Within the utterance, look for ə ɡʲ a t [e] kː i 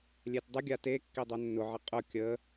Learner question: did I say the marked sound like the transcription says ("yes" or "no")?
yes